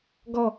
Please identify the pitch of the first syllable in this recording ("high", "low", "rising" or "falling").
falling